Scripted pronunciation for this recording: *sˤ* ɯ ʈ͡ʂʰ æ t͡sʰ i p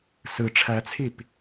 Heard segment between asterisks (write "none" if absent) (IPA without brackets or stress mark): s